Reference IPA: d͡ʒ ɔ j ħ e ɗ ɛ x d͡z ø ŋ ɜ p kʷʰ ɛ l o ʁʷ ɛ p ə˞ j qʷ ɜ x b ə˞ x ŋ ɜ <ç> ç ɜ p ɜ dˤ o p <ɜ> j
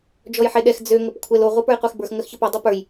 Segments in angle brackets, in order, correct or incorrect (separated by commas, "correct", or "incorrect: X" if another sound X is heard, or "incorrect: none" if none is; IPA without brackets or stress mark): incorrect: x, incorrect: ə˞